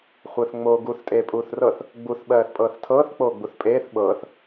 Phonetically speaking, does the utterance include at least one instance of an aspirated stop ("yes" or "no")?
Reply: yes